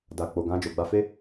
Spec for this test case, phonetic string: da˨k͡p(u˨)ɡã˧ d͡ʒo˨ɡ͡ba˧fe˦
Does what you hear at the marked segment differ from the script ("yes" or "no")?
yes